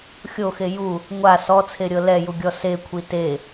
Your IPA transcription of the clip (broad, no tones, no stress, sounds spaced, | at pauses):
xʲ o x e j u | ŋʷ a s ɔ t͡sʰ e ɾʲ ɤ l ɛ j u ɡʲ ɔ s e kʷʰ i t e